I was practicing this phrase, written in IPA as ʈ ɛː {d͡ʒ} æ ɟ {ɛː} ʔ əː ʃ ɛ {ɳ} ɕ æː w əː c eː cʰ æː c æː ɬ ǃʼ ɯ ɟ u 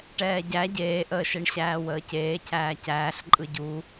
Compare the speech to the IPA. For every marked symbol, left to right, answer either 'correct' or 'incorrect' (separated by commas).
incorrect, incorrect, correct